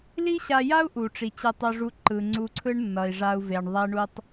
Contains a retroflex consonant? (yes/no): yes